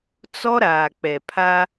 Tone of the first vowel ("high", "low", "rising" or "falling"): high